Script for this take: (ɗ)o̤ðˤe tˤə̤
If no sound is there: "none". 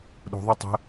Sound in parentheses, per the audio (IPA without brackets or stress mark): ɗ